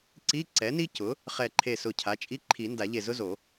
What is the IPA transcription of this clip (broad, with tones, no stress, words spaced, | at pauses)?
ǀi˧˥˧ ǀɛ˩˥ni˥cʊ˩˥ | χɛ˧˩ǃʰe˧˩ sʊ˧˩cʰa˩˥t͡ʃʼi˧˥˧ǃʰi˨˩˦ nda˨˩˦ʎe˧˩zʊ˥zo˨˩˦